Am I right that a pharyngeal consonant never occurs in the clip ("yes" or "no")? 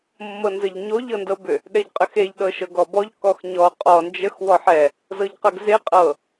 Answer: no